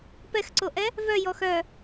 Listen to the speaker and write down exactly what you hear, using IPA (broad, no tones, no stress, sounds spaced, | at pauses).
p ɛ x ǀ o ʔ ɛ | v œ j ɔ x œ